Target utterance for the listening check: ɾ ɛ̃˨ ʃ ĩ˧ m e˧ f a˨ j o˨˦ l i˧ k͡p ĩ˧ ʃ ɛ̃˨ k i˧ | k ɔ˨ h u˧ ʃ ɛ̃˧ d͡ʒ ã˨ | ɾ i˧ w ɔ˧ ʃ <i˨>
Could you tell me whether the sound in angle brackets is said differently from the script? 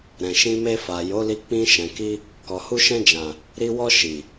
no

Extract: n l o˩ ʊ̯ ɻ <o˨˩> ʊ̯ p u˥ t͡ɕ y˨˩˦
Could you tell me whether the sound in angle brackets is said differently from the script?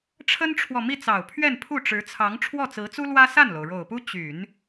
no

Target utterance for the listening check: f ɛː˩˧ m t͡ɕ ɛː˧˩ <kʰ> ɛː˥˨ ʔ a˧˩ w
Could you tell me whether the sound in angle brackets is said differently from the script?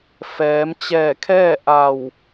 no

